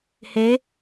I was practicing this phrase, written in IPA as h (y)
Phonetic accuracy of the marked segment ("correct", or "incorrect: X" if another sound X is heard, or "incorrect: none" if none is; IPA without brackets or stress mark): incorrect: e